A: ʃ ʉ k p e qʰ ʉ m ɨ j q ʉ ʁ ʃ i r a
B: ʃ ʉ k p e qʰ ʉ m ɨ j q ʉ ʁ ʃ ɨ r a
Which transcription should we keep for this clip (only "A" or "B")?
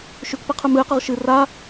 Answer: B